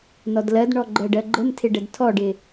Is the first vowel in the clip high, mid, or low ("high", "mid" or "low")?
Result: mid